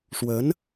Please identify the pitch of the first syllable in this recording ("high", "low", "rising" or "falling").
rising